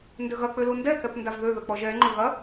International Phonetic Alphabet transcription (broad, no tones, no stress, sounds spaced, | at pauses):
n d ø ɣ ɐ k͡p ø l u n d ɛ k ɛ p n d a v ð ø ð ə k͡p ɔ ʒ ɛ ŋ͡ǃ ʊ ɣ ɐ